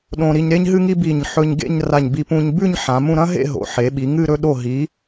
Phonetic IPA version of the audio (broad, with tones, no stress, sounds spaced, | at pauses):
ɗ õ˧ ɾ i˧ ɲ ɾ e˥ ɲ ɦ ɨ˥ ŋ i˥ b i˧˩ ɲ ħ ɵ˧ ɲ ɡ ḛ˥˧ ɲ r a˧˩ ɲ b i˧ p ũ˧ ɲ b ʉ˥˧ ɲ ħ ã˩˧ m ũ˥˧ ɾ ɐ̃˥ ɦ ḛ˥˧ ɦ o̰˩˧ ħ e˩˧ ɓ i˩˧ ŋ ɨ˥˧ ɾ ɵ˧ ɗ o˧˩ ɦ i˩˧